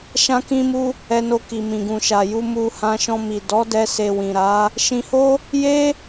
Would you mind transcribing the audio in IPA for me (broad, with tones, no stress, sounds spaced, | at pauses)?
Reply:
ʃ ã˧ k ĩ˧ m u˧ | ɛ˧ n o˧ k i˨ m ĩ˨ ɡ ũ˨ ʃ a˨ j u˧ m u˧ h ã˧ ʃ ɔ̃˧ m i˨ d ɔ˨˦ d ɛ˧ s e˨ w ĩ˨ ɾ a˨˦ | ʃ ĩ˧ h o˦ | j e˦